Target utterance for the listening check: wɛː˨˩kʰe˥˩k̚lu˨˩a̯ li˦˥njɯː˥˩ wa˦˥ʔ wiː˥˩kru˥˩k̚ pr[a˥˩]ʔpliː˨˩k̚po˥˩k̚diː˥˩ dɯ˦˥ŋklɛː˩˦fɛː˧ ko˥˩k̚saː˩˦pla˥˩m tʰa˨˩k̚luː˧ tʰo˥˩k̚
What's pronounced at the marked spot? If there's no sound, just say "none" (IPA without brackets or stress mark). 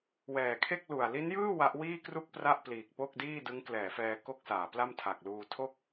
a˥˩